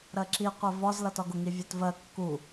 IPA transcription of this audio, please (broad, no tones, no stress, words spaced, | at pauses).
ɾɜǁi qʷɜvɒz lʌtɒɡʊ ŋivʲɛtvɜ kːu